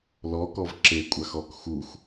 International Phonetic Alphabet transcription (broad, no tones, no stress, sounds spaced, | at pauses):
l ɔ k ɔ v ǁ e kʷʼ a x ɔ k x u x